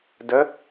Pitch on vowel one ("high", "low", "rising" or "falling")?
rising